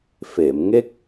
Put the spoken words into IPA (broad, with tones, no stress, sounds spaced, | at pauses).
f e˨˩˨ m ŋ e˦˥ k̚